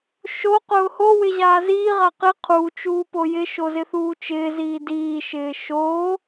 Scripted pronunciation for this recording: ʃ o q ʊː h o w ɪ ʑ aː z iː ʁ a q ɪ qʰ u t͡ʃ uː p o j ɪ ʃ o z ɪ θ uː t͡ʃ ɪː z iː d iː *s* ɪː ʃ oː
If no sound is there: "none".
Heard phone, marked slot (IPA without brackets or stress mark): ʃ